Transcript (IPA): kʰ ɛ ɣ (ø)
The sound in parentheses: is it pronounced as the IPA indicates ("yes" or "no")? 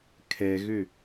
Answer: yes